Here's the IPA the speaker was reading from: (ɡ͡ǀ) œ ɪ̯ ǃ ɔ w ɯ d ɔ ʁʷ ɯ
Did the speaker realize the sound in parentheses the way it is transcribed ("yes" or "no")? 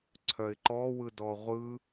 no